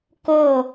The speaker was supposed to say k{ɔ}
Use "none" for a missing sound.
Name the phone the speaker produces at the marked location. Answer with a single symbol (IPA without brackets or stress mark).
o